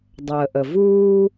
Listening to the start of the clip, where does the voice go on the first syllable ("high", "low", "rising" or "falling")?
low